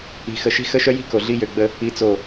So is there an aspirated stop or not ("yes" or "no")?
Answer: no